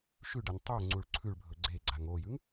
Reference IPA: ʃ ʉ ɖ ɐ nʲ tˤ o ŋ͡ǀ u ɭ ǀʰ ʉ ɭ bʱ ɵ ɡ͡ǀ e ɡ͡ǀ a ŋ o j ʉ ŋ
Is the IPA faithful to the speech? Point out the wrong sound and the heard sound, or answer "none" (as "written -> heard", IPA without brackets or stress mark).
none